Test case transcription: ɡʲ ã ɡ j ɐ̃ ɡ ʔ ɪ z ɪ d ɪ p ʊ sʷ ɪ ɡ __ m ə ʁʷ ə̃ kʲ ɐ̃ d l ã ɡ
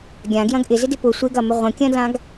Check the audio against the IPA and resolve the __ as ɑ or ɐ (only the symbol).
ɐ